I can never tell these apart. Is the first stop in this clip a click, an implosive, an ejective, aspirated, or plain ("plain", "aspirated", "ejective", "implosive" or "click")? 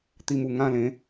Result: plain